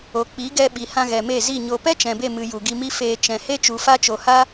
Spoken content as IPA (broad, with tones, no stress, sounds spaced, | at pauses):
o˨ k͡p i˨˦ ɡ ɛ˧ ɓ i˨ h ã˧ ɣ ɛ˨ m e˦˨ z i˦˨ ɲ o˨ p ɛ˦ t͡ʃ ɛ̃˨ b e˦˨ m ɨ˨ j u˨ ɡ i˧ m i˦ f eː˧ t͡ʃ ɛ̃˨ h e˦ t͡ʃ u˨ f a˦ t͡ʃ o˨ h a˦